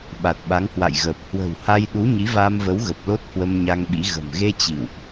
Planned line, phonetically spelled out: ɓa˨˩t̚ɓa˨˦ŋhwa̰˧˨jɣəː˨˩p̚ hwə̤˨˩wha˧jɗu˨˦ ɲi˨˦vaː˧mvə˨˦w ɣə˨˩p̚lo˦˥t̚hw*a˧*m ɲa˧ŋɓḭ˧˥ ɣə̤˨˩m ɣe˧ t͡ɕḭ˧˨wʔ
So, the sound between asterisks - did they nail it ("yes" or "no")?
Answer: no